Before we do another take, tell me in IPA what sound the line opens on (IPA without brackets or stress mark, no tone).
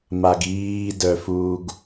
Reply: m